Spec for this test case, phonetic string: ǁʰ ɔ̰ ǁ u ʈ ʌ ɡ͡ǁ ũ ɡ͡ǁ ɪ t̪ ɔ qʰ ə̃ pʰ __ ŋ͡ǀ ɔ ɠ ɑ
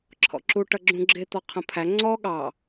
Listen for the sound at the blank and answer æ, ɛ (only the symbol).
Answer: æ